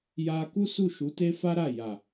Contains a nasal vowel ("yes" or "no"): no